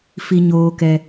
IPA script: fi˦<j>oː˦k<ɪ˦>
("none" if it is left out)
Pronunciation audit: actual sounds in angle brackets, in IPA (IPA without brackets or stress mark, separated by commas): ɲ, ɛ˦